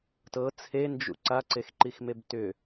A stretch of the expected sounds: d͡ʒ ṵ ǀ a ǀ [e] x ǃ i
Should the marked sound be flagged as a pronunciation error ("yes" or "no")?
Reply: no